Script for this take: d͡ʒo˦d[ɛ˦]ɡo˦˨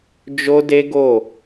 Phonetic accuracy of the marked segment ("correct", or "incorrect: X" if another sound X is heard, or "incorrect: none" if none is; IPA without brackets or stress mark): incorrect: e˦